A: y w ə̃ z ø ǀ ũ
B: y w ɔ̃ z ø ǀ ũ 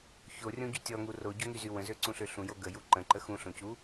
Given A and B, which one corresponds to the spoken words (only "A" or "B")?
A